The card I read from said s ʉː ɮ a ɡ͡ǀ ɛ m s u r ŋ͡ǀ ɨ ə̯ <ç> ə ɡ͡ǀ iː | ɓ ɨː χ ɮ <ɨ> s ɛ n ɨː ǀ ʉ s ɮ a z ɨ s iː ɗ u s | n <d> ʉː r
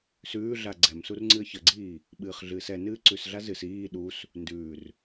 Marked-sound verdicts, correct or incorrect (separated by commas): correct, incorrect, correct